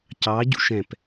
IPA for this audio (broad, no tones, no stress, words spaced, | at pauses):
cɑɟṵʃ ɛ̃p